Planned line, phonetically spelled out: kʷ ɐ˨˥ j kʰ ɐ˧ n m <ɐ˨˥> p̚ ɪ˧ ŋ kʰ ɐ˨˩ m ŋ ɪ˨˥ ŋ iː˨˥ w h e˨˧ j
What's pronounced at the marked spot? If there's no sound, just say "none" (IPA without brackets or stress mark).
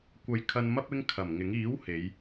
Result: ɐ˥